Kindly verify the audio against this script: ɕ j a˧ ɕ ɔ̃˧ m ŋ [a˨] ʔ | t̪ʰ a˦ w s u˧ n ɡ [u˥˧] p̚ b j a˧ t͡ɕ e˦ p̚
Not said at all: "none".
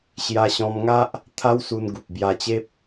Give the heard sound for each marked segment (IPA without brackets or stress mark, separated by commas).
a˦, u˨